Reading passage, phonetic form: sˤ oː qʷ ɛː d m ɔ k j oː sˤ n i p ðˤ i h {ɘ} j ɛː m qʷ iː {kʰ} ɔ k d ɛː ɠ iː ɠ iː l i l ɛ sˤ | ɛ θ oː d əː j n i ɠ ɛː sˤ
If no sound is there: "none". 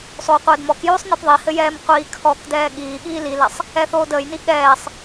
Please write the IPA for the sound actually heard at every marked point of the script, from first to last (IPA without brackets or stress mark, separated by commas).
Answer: ɘ, kʰ